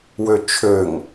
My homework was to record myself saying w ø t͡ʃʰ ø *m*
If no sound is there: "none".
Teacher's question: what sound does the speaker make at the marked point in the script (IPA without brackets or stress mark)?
ŋ